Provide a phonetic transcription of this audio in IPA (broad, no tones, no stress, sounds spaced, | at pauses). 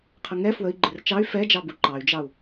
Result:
qʰ ə ŋ ɛ f w ə i̯ ɡ͡ǃ ɪ r t͡ʃ ɑ y̯ f ɛ d͡ʒ ɑ b u ǃ ɑ y̯ d͡ʒ ɑ u̯